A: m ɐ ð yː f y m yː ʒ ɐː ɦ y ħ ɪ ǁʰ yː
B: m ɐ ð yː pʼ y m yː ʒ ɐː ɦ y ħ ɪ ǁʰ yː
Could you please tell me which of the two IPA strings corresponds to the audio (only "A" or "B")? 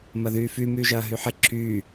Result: A